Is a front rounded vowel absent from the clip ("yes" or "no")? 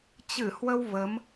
yes